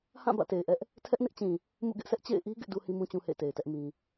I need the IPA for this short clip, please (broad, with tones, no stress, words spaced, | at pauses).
hã˦˨ bä̰˦˨te˨ɪ̯ʔɛ˦ʔ | tʰɛ˦ʔnɪ˦ʔt͡ɕĩ˨ | mṵ˦˨ɡɪ˦ʔsʰɛ˦ʔ t͡ɕḛ˦˨ɪ̯ʔi˦ ɡɪ˦ʔdu˦ hĩ˦mũ˦ t͡ɕũ˦hḛ˦˨ɪ̯te˨ɪ̯tɛ˦ʔ mĩ˦